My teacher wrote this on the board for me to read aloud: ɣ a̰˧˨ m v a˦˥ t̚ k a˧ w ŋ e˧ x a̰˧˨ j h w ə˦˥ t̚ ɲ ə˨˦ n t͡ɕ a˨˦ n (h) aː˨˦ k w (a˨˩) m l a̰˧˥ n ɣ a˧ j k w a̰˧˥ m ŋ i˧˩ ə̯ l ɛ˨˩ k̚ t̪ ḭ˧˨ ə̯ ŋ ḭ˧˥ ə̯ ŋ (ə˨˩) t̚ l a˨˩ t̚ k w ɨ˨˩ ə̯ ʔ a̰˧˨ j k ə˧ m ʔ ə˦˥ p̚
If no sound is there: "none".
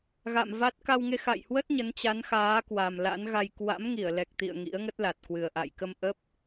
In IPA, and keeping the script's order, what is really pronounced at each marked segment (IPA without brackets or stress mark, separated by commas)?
x, a˨˩, ə˦˥